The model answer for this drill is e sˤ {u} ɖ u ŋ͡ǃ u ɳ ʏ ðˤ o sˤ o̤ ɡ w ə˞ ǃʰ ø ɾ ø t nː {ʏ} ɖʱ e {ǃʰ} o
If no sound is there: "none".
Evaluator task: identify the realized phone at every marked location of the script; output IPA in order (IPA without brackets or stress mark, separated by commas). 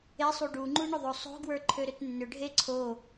u, ʏ, ǀʰ